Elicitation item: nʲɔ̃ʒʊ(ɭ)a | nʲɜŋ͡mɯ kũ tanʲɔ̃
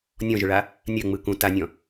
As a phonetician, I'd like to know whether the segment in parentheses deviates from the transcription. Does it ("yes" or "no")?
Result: no